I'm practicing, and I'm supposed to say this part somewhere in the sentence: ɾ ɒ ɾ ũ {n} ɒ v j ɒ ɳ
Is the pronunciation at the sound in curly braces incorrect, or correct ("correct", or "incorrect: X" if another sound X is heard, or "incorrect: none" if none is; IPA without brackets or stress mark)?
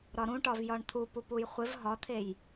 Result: incorrect: ʈ